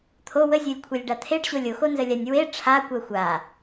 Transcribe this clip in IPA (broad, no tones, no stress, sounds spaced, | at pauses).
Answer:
t̪ʰ o w ə zʲ o lʲ kʷʰ e lʲ ɖ a t̪ʰ e ɖ ɕ o lʲ o x o n z ə lʲ a nʲ w e ʈ͡ʂʰ a kʷ ɜ xʷ a